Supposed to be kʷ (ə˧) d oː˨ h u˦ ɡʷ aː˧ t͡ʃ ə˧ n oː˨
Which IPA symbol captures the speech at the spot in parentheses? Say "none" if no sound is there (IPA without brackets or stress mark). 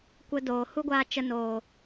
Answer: ə˧